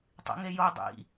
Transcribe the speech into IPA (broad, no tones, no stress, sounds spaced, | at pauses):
tˤ ḭ ŋ e j o dˤ ḭ